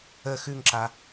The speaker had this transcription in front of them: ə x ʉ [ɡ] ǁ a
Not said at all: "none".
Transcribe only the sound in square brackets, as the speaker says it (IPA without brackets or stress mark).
ŋ